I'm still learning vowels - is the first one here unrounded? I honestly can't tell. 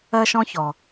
yes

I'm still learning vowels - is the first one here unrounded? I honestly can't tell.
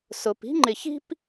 no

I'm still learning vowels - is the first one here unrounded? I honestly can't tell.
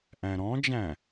yes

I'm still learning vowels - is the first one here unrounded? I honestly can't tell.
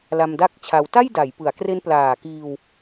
yes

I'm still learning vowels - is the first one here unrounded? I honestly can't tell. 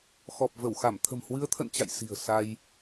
no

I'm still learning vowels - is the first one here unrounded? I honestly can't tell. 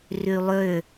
no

